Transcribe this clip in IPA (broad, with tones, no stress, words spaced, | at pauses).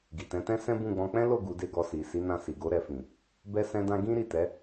ɡi˨tɛ̃˨˦tɛ̃˦ sɛ̃˦bũ˦˨ɡ͡bɔ̃˧ k͡pɛ̃˦lo˦˨ ɡu˨˦de˦˨ɡɔ˧si˨ si˨˦nã˧si˨ɡo˨˦ ɾɛ˧fĩ˨ | bɛ˦sɛ̃˦dã˦ ɡĩ˦ɾi˦˨ tɛ˨˦